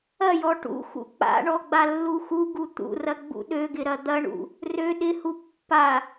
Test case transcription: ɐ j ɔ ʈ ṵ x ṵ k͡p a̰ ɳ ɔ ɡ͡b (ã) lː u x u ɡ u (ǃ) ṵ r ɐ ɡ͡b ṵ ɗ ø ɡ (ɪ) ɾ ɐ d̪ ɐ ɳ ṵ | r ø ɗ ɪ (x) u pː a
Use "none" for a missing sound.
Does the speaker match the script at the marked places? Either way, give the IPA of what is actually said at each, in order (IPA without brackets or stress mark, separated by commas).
a, t̪, ɪ, h